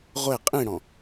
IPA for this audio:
ʁʷ e qʼ ĩ ɽ ɔ̃

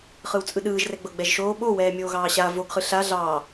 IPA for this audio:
χ ɯ w t͡sʼ ɯ ɗ ɯː ʒ r ɛ ɡ͡b ɤ ɡ͡b ɛ ʒ ʃ oː ɓ o w ɛː mʲ oː ɣ ɑː ɕ a v o ɡ χ ɯ ɬ a ɮ ɑː

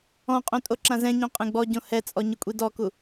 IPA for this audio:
ɔ̃ qʼ õ tʼ o ǁ ã z ɛ̃ ɲ õ qʼ ẽ ɡ͡b ɔ ɟ õ h ɛ t͡sʼ ɔ ɲ ʊ kʷʼ i d ɔ k u

